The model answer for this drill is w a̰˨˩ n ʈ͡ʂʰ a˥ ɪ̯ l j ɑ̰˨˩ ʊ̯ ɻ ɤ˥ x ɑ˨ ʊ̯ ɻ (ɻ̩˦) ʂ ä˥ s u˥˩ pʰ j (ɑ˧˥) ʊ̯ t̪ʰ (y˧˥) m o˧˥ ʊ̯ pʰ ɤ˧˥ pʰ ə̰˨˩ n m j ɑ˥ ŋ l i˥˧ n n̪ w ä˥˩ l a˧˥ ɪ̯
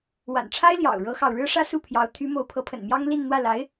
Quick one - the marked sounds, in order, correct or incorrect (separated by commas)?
incorrect, correct, correct